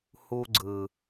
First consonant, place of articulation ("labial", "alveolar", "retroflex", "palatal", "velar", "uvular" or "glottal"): glottal